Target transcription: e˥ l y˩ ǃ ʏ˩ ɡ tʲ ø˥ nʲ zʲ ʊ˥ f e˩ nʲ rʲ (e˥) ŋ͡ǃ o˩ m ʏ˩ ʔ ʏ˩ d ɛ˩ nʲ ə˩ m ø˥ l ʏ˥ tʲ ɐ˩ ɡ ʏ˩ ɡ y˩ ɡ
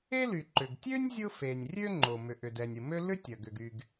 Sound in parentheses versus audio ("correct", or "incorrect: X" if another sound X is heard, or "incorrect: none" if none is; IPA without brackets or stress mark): incorrect: ø˥